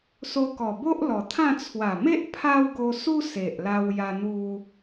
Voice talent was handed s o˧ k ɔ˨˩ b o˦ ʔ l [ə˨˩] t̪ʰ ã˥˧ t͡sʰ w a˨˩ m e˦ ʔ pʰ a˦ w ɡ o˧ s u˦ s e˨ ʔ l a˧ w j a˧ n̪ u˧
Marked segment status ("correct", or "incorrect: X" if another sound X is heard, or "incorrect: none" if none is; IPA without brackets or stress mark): incorrect: ɔ˨˩